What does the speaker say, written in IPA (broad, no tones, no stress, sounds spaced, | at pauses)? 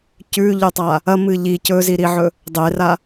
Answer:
c ʉ ʎ ʉ tˤ a | ɐ m ɨ ʎ i c ɵ z i ɾ i ʕ ɵ | dˤ e r a